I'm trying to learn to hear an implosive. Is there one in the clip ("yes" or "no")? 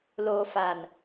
no